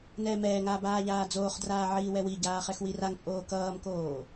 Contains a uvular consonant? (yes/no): yes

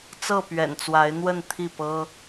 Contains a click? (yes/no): no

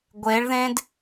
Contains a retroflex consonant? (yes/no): yes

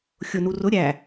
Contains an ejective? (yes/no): no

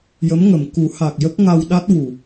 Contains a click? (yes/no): no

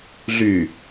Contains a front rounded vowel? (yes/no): yes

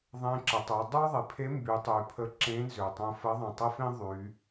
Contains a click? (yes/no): yes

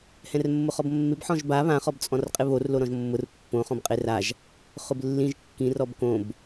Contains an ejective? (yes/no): yes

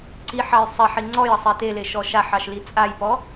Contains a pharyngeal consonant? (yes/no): yes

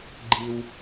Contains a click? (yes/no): yes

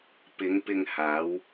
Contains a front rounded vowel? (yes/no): no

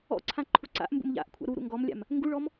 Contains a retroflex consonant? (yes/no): yes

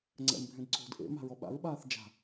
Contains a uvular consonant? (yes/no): no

